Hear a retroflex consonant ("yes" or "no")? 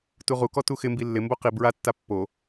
no